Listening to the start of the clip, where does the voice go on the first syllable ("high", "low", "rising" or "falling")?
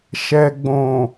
low